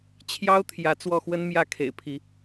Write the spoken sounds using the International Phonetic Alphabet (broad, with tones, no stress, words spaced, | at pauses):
t͡ɕʰjɑ˦ʊ̯t̪ʰjä˨˦ t͡swɔ˥˨xwə˦nmjä˥˨ kʰḛ˨˩ɪ̯pʰi˨˦